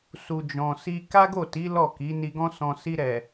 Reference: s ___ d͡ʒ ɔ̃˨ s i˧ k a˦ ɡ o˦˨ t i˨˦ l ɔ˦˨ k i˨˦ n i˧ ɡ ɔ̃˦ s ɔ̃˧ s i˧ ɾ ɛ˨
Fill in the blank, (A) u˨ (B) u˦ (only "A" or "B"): A